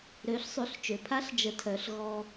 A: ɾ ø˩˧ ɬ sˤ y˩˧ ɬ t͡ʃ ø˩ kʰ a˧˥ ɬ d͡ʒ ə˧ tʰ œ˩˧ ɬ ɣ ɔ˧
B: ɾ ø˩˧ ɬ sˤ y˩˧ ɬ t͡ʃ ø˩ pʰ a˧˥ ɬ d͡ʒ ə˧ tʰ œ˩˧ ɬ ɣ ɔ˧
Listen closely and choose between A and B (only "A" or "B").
B